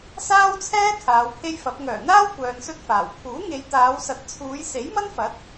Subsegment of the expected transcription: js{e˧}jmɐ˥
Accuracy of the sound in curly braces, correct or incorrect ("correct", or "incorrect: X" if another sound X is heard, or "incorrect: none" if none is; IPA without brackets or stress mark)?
incorrect: e˨˥